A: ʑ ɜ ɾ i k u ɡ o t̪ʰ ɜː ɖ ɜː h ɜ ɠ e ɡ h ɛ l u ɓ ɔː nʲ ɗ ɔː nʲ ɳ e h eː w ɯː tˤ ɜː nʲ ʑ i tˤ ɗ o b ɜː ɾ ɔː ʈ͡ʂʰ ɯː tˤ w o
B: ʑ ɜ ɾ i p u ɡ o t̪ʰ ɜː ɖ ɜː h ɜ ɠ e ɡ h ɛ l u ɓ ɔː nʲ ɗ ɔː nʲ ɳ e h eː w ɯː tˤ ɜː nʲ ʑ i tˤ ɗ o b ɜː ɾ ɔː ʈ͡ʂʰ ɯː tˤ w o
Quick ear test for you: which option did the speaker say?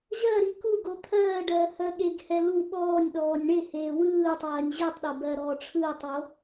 A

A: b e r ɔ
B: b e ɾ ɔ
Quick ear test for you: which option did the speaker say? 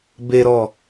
B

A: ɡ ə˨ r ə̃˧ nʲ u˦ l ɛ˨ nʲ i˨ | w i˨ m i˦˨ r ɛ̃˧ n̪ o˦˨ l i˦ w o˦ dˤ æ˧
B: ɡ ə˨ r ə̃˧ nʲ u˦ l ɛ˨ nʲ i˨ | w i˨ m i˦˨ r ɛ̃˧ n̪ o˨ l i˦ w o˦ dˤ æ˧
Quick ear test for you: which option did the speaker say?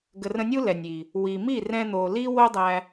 B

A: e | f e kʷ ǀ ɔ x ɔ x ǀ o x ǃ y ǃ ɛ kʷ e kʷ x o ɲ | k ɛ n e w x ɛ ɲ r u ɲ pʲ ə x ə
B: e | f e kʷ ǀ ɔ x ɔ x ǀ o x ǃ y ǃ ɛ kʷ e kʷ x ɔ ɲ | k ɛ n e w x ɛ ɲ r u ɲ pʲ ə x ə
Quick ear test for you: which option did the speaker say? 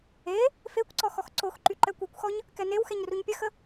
B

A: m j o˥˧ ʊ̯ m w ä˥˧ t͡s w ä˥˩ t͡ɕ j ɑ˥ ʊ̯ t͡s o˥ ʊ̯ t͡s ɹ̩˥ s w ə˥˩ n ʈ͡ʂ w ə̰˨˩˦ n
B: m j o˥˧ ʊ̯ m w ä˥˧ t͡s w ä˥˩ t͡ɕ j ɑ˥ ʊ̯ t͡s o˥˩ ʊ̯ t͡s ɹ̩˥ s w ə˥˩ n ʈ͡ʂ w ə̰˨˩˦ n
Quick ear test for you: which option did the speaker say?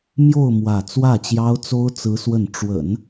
A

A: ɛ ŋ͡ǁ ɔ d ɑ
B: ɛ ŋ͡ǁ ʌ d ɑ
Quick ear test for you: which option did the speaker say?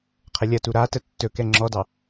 A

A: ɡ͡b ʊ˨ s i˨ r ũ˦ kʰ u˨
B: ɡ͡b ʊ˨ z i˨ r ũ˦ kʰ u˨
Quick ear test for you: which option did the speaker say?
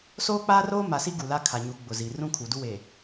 B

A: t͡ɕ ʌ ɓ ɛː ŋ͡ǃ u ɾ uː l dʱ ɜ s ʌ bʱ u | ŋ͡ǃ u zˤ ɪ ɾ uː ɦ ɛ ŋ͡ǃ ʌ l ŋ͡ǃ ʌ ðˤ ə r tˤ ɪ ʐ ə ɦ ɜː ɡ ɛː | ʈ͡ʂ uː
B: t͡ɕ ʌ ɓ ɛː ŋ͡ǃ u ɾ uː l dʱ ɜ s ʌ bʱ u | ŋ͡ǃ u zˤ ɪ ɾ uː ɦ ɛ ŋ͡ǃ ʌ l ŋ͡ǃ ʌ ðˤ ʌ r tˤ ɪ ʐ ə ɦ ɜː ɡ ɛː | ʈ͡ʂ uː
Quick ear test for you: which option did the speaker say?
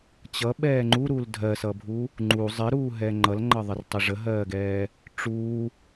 A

